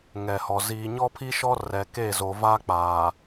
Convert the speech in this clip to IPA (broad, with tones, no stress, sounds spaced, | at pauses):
ŋ ɛ˨ h ɔ˨ z iː˨ ɲ ɔ˦ pʰ i˦ ʃ ɔ˦ r ɛ˨ k e˦˨ z o˨ v a˦ k͡p aː˨